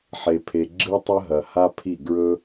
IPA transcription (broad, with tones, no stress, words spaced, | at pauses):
ħe˨pʰe˨ɡ͡ǁɨ˦ tˤɐ˦ɦɐ˨ ha˦pʰi˦˨ ɡɹɵ˦